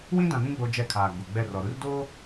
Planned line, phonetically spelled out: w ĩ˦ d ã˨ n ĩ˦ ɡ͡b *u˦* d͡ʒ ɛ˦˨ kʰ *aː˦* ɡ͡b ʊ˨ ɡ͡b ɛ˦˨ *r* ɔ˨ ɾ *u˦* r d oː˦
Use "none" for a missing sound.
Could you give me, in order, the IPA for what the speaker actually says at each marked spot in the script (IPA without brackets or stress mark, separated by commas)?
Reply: o˦, aː˨, r, u˦